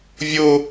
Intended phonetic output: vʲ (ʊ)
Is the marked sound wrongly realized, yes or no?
no